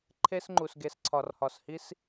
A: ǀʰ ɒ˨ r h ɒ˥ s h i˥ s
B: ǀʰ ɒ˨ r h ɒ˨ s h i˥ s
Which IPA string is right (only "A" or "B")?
B